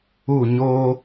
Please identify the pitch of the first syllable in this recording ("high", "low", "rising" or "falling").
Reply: falling